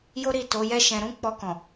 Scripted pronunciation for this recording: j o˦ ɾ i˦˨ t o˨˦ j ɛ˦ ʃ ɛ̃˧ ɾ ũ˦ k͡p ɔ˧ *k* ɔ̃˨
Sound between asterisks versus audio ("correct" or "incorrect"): correct